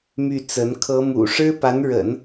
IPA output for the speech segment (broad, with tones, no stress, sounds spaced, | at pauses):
m y˥˩ t͡s ə˧˥ n kʰ ɤ˧˥ m ṵ˨˩ ʂ ɻ̩˥ p a˧˥ n ɻ ə̰˨˩˦ n